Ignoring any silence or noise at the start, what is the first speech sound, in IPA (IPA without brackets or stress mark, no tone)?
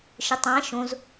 ʃ